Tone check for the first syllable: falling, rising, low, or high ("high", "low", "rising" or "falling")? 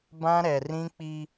high